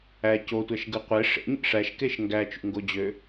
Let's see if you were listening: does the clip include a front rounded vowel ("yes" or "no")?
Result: yes